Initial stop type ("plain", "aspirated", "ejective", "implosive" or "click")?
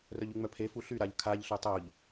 aspirated